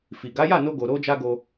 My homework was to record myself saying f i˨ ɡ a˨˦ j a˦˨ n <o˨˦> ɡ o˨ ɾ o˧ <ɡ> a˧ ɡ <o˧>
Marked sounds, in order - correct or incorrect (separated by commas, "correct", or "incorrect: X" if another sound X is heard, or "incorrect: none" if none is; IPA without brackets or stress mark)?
incorrect: o˧, incorrect: d͡ʒ, correct